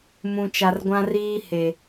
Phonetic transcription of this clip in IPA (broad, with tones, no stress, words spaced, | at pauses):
mũ˨t͡ʃa˨r ɡʷã˦riː˦he˨